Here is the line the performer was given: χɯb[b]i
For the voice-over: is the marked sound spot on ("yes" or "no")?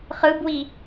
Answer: no